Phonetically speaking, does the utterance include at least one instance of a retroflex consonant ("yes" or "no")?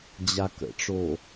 yes